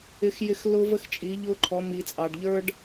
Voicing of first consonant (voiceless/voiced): voiceless